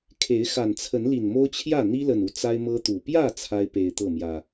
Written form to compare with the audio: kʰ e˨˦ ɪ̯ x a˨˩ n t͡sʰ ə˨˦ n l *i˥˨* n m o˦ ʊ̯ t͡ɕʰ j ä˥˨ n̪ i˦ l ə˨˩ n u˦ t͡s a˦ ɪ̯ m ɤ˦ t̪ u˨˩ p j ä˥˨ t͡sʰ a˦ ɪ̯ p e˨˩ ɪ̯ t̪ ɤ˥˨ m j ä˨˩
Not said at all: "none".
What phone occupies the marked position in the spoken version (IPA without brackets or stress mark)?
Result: i˨˩